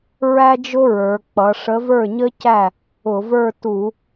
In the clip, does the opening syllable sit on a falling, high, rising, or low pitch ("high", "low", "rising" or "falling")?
high